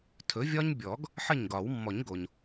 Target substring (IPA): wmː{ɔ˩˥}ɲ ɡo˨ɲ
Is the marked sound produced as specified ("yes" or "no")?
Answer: no